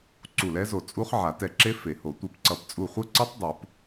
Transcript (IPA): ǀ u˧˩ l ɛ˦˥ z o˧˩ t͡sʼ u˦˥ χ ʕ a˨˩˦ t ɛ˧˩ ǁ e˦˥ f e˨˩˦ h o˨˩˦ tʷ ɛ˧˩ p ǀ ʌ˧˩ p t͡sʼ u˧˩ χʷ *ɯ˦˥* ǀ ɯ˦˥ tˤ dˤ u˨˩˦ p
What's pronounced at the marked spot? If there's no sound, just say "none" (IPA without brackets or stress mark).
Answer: ɯ˦˥